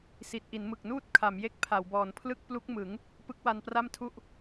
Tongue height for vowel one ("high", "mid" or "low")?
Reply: high